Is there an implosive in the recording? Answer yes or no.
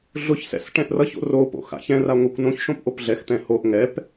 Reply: no